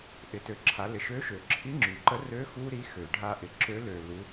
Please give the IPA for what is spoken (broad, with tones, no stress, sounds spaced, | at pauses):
ʔ ɪ˩˧ t ø˩ ǁʰ a˩˧ l ɪ˩ ʃ ø˧˥ ʃ ø˩˧ ǁʰ i˧˥ ŋ͡ǁ y˩ ǃ ə˧˥ r ø˧˥ x u˥ ɾ i˧˥ x ø˩ ɖʱ a˧ ʔ ɪ˩ ǁ ø˧˥ l ø˩ l u˩˧